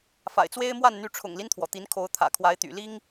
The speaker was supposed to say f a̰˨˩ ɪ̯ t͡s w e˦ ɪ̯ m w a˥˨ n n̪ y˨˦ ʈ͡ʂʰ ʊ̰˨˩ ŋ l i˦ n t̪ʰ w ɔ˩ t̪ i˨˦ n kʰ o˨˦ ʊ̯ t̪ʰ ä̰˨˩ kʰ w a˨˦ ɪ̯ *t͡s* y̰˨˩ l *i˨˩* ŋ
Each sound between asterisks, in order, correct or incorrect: incorrect, incorrect

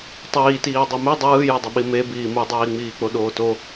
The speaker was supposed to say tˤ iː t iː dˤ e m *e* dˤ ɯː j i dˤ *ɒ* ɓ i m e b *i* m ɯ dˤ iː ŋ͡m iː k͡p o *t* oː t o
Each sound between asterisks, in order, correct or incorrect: incorrect, incorrect, incorrect, incorrect

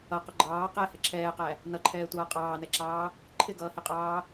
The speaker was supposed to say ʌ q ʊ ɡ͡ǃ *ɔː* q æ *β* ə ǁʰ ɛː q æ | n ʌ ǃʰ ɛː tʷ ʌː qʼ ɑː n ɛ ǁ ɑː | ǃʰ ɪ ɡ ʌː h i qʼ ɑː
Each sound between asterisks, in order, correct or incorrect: incorrect, incorrect

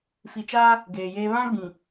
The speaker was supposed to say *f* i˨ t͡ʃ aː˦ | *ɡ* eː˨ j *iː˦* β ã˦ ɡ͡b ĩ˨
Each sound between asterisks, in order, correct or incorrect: correct, correct, incorrect

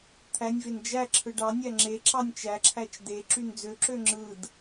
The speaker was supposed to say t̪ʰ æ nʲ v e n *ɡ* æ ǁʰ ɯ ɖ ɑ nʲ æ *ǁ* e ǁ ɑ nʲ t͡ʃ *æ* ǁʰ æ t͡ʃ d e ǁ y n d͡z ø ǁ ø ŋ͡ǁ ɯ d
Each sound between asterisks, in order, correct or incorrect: incorrect, incorrect, correct

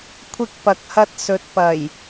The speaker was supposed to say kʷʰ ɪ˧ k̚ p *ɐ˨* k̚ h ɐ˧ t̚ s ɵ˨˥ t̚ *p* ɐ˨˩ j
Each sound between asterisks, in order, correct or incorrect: correct, correct

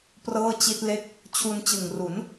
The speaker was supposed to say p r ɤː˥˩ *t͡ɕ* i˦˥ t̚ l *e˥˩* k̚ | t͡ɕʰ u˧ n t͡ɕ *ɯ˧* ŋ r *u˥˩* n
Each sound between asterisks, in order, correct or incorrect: correct, correct, incorrect, incorrect

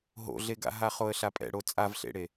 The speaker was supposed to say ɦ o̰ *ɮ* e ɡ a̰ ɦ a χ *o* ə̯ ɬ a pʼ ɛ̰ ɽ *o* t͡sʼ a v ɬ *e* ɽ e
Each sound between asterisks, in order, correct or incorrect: correct, correct, correct, incorrect

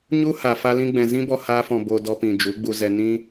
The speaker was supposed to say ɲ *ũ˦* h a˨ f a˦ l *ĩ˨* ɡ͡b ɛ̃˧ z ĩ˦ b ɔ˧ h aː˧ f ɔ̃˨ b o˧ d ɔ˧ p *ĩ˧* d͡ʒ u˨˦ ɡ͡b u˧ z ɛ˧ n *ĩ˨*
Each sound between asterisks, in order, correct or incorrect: incorrect, incorrect, incorrect, incorrect

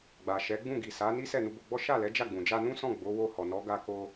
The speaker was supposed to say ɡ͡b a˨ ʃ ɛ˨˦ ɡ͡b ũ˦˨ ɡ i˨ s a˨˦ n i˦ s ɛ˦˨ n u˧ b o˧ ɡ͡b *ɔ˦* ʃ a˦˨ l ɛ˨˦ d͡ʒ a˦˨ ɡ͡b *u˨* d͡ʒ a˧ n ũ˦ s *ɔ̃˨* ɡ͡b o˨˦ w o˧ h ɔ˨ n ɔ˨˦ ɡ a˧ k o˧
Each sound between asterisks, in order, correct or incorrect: correct, incorrect, incorrect

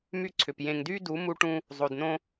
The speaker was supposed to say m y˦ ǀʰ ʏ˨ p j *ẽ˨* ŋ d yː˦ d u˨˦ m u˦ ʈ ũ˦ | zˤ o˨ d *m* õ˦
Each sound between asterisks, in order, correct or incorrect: correct, incorrect

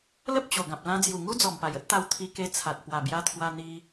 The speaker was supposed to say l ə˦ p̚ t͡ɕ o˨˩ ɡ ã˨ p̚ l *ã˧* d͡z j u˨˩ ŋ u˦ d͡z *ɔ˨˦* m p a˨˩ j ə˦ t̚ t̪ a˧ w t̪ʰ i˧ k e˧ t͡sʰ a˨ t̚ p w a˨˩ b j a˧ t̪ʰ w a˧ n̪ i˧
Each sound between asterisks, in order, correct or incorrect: correct, incorrect

